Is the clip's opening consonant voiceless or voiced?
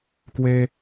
voiceless